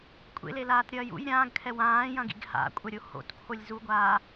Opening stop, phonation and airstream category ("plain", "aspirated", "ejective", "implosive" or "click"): ejective